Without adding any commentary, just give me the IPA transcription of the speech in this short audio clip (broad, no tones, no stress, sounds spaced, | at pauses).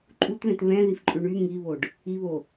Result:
ǃʼ u t ð ɛ̃ t β ɛ̃ ð i f ǃʼ ʉ ɳ y ŋ i β o ɖ | i β o